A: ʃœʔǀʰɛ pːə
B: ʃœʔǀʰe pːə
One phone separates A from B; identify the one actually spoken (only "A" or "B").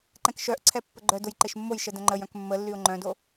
A